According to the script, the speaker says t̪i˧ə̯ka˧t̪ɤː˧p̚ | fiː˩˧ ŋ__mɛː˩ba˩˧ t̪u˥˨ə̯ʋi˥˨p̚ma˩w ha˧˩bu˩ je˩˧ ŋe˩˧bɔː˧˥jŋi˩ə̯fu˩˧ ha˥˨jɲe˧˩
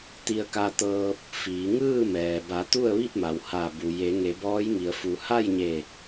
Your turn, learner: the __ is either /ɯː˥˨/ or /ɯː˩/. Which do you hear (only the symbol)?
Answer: ɯː˥˨